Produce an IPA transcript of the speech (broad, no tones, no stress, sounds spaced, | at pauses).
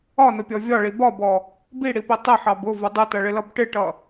ɒ n ʊ pʲ ɔ vʲ ɒ ɭ i b ɒ b ɔ | b i ɽ i p i tˤ ɪ ħ ɑ b ʊ v ʊ dˤ ɪ t ʌ ɭ ɪ l ʌ b ʈ ɪ ʈ ʌ